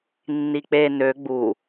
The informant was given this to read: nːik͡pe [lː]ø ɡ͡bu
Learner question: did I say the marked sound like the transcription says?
no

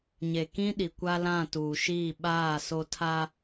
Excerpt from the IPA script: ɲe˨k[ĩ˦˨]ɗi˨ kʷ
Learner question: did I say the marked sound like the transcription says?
no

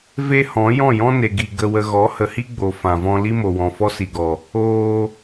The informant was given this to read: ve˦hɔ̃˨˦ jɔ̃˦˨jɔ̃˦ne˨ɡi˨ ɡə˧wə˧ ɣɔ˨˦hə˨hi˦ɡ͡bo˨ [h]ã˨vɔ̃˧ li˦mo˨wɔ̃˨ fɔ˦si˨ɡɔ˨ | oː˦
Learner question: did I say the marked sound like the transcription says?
no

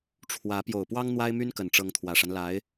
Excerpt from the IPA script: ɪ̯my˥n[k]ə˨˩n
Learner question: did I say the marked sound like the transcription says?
yes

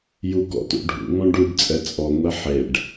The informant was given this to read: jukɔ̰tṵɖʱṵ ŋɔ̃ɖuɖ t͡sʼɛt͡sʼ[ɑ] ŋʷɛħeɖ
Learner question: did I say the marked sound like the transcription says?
no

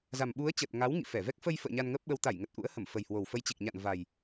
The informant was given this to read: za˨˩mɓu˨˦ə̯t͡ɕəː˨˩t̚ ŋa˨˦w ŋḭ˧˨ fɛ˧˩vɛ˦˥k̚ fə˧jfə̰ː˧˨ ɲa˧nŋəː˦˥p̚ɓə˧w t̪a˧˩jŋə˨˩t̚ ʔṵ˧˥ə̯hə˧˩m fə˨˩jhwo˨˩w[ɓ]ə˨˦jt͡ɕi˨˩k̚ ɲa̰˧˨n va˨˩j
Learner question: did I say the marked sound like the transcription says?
no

